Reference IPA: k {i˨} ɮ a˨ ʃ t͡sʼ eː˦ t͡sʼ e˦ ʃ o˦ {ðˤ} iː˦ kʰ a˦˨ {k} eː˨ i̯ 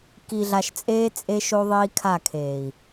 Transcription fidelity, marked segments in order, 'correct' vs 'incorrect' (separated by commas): correct, correct, incorrect